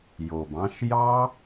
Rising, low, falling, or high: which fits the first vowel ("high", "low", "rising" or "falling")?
low